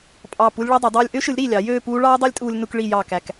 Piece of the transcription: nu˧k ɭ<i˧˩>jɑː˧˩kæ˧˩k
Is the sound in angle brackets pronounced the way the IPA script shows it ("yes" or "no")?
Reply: yes